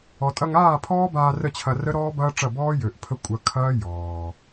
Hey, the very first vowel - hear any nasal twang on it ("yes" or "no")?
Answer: no